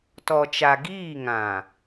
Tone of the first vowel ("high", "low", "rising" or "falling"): low